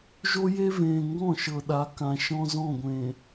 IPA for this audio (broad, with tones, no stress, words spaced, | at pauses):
ʒo˦je˦vẽː˨ ŋɡɔ̃˦˨ʃɤ˨ɗa˨˦ kã˨ ʃɔ̃˦zɔ̃˦˨ɡʷẽː˨